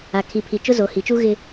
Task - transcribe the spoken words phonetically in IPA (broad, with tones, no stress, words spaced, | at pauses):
a˨kʰi˨pʰi˨ t͡ʃʊ˦zo˨hi˨t͡ʃu˦ ɣɪ˦